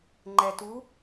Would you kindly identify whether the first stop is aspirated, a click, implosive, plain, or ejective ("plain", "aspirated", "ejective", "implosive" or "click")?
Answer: click